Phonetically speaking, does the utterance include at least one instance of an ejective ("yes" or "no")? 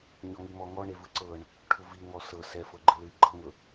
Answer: no